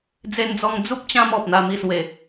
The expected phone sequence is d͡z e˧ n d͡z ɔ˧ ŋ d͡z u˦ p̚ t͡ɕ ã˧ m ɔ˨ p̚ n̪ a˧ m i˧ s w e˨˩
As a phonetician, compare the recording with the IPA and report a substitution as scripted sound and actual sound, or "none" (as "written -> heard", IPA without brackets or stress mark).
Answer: none